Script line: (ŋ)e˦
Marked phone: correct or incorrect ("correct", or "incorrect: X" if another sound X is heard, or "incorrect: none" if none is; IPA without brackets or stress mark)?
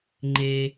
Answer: incorrect: ŋ͡ǃ